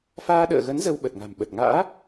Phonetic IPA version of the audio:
f aː˧ ɗ ə̰ː˧˨ ɣ ə˨˦ n z ə˧ w ɓ ə˨˩ t̚ ŋ a̤˨˩ m ɓ ə˨˩ t̚ ŋ a̰ː˧˥

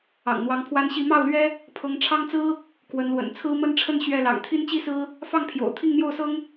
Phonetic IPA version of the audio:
ɑ̰˨˩ ŋ n̪ w ɑ˧˥ ŋ pʰ w a˥ n ɕ i˥˧ m ɑ˥˩ ʊ̯ l ɥ ɛ˥ | pʰ ɤ˧˥ ŋ ʈ͡ʂʰ ɑ˥ ŋ t͡s ɹ̩˥ | k w ə˧˥ n l w ə̰˨˩ n t͡sʰ ɹ̩˥ m ə˥ n ʈ͡ʂʰ ə˥˧ n ɕ ɥ ɛ˥˩ l ɑ̰˨˩ ŋ t̪ʰ i˥ n t͡ɕ i˥ s ɹ̩˥ | f ɑ˥˩ ŋ pʰ j o̰˨˩ ʊ̯ t̪ʰ i˥˧ ŋ n̪ j o˥˩ ʊ̯ s ɤ˥ ŋ

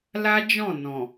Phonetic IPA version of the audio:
l a˦ d͡ʒ ɔ̃˦˨ n ɔ̃˨

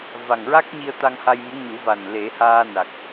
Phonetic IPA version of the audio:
v a˨˩ ŋ ɹ a˦˥ k̚ ɲ i˧ ə̯ t̪ a˧ ŋ h a˧ j m u˧˥ ɲ u˨˩˦ v a˨˩ n l e˨˩˦ h aː˧ n a˨˩ k̚

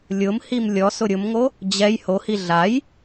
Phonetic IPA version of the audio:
lʲ ʊ m h i m lʲ ɔ s ʊ ɾʲ ʊ m ŋ o | d͡ʑ ɛ j h o h i ɮ a j

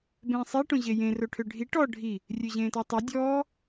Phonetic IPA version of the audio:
b ẽː sˤ e ʈ õ ʑ e j ẽ r o ʈʰ ø ɖʱ i ʈ ɔ ɖʱ i | rʲ ø ʑ ẽː t ɔ tˤ o dʲ ɔː

